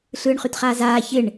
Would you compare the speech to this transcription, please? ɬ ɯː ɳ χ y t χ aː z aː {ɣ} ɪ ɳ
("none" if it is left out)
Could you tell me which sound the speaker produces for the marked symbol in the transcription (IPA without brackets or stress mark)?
ç